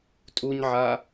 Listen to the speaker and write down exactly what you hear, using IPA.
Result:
tʼ u ɲ ʕ a

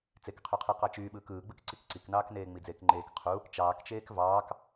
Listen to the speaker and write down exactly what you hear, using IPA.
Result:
t͡s e k qʰ y qʰ ɯ q ɑ t͡ʃ yː ɓ ɯː k ɯː ɡ͡b ɯ k ǀ i k ǀ i k n ɑː k n eː ŋ͡m i d͡z eː k ŋ͡ǃ eː k qʰ u | t͡ʃ ɑː k t͡ʃ eː k v ɑː k

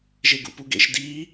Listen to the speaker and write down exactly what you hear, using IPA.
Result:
ʒ e ɡ ṵ p u ɡ ḛ ʃ d i

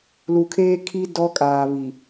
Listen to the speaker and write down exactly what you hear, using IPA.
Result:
l u˨ kʰ eː˦ kʰ i˦ d ɔ˦ kʼ aː˨ β i˨

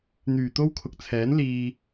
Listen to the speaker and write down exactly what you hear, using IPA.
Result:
n̪ yː˨˩ t̪ o˥ w kʰ ʊ˨ k̚ t͡sʰ ɛː˨˥ n l iː˧

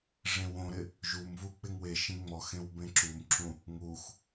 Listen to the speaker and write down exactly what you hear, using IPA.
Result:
ʐ ẽ w õ ɾ ɪ | ʒ u m v u k͡p ɪ ŋ w e ʃ ĩ ŋ͡m ɔ x ẽ w b ẽ ǁ u m ǁ ũ | ŋ u x

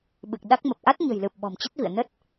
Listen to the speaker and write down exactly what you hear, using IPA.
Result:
ɓ ɨ˨˩ k̚ ɗ a˦˥ k̚ m ə˨˩ p̚ ʔ a˦˥ t̚ ɲ ə̤˨˩ j l ɨ˨˩ p̚ ɓ ɔ̤˨˩ m t͡ɕ ə˦˥ t̚ v ḭ˧˨ ə̯ n ə˦˥ t̚

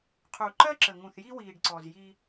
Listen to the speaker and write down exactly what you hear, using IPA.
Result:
qʰ uː˨ ǃ ɜ˦ ǁ ə˨ ŋ ũ˨ θ j i˦ w iː˨ ɖ ǀ ɔ˨ z j i˦

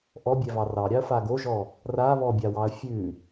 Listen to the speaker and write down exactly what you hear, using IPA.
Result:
ʔ ɔ bʲ ɛ v ɑ r ɑ ɾʲ ɑ ɐ̯ f a ɡ o ʒ ɔ | r a β ɔ bʲ a w ɑ ɐ̯ fʲ ʉ

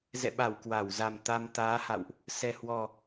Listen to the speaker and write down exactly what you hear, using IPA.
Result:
z ɛ̰˧˨ ɓ a˧˩ w k w a˧˩ w z a˨˩ m t̪ a˧ m t̪ aː˨˦ h a̰˧˨ w ʔ | s ɛ˨˩ h w ɔ˨˩

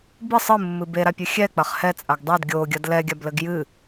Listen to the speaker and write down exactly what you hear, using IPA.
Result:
b ɨ sˤ ɨ mː ɨ b e ɾ a pʲ ɨ xʲ ɛ k͡p ɐ χ h ɛ t͡sʼ a ɡ dˤ ɛ d ɡʲ o ɡʲ ɐ d l ɛ ɡʲ a b l ɘ ɡ j ɨ

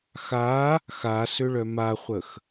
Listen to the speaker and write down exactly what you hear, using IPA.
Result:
x a | x a s ø ɭ œ m a χʷ ə x

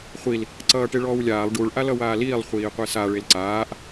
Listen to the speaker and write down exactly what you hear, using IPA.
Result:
χʷ i l | ǀ ʌː ʈ e ɭ ɔː w lʲ aː lˠ ɖ u ɭ ʔ a l ʌ w aː l iː lˠ χʷ iː qʷ e s a ɭ e l ǀ aː ʔ

